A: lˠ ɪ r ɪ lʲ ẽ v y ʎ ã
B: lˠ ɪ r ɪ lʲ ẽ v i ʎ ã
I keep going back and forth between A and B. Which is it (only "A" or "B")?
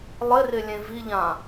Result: B